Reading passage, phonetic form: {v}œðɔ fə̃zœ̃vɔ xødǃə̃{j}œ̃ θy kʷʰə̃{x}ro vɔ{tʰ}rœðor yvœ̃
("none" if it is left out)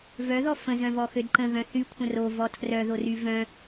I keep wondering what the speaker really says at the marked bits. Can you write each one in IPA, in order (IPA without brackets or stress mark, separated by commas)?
v, ɣ, none, tʰ